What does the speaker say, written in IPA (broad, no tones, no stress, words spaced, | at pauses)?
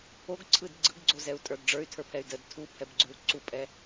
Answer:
oɡǀʰɯd ɡ͡ǀɯɡɡ͡ǀozɛu̯tʼə˞d ɖ͡ʐə˞y̯tʰə˞pʰɛy̯ dəd tʰupʰɛbɡ͡ǀʉu̯ ǀupʼɛ